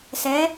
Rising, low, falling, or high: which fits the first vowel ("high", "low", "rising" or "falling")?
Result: rising